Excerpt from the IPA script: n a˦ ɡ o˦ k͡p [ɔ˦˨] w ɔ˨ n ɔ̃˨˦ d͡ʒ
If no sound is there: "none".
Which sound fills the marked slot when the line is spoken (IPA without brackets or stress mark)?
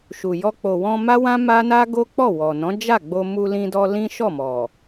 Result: ɔ˦˨